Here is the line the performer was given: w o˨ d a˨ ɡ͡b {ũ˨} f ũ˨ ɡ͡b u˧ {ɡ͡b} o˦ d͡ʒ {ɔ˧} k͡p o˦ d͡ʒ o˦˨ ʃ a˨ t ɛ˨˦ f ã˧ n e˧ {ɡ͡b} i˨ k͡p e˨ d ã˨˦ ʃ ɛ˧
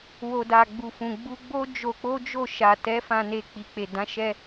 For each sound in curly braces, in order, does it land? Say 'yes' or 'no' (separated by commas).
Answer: no, yes, no, no